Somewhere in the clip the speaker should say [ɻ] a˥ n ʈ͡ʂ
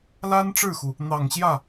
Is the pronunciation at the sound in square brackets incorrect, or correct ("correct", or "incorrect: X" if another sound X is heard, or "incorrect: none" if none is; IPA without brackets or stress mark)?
incorrect: l